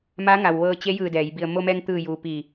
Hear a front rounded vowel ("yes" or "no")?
no